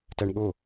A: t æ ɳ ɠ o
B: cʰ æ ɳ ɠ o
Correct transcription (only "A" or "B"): A